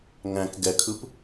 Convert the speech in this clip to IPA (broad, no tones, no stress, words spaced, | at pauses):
ŋæ̃k ɡɛkʰɯp